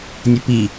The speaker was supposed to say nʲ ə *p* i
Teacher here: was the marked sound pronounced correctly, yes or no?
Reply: yes